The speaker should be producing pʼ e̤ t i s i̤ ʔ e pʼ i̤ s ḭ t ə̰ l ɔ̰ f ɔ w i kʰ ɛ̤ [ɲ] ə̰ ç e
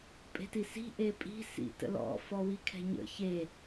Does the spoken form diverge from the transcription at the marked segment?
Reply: no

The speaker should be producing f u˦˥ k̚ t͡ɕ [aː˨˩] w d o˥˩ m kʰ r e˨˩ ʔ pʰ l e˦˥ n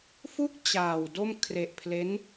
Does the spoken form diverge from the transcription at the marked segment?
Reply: no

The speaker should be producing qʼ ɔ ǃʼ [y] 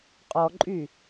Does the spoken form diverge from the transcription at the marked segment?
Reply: no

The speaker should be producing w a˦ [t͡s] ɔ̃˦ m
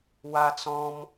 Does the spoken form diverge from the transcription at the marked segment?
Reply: no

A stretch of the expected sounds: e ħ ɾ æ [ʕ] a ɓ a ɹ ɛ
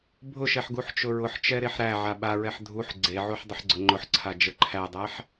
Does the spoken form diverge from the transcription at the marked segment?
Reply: no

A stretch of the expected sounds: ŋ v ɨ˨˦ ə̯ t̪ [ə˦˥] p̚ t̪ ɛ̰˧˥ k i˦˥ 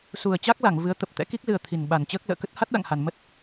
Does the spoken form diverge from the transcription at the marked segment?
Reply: yes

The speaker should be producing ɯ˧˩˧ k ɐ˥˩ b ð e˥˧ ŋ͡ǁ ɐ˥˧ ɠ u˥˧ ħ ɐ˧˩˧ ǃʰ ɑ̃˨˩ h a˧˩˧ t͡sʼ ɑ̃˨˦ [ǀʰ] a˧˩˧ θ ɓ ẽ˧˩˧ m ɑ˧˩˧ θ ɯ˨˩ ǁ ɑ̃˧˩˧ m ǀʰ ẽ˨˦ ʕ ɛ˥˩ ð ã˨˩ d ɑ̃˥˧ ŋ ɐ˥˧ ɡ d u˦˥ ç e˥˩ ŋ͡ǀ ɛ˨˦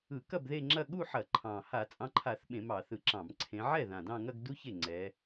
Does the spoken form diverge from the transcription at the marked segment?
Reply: yes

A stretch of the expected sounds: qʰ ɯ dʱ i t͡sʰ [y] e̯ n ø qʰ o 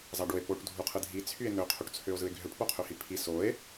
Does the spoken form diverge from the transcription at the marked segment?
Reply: no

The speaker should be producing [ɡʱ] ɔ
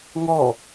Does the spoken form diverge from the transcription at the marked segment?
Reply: yes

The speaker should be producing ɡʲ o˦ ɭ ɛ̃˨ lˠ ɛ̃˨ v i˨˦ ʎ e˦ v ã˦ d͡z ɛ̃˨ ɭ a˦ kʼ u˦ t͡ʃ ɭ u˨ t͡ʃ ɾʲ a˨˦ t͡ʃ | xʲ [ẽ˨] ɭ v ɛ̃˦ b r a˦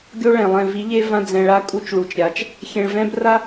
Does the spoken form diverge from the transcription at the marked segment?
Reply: no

